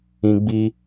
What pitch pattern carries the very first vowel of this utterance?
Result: high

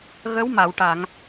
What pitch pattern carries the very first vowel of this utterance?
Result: rising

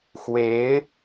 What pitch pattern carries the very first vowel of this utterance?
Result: rising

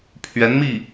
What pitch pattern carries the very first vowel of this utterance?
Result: rising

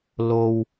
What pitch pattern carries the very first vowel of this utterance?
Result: low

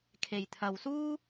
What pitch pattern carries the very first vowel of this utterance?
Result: low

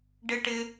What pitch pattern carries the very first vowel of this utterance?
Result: high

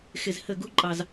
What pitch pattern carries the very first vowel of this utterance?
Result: low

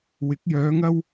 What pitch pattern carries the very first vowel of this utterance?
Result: rising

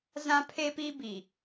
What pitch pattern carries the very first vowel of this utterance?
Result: high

